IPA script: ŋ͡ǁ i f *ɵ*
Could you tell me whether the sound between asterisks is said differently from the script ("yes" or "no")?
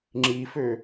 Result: yes